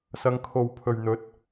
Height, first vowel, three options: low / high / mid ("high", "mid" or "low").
low